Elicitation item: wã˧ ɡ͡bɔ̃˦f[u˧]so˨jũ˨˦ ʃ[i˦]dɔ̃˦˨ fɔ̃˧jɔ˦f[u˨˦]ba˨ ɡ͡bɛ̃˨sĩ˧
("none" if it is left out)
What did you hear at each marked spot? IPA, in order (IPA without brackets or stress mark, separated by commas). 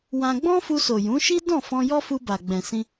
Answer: u˧, i˦, u˧